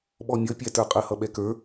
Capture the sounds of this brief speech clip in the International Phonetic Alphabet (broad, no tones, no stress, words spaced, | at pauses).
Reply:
ɓɔmʲʌpʲæ tə˞qʼə hʌɓɛkə˞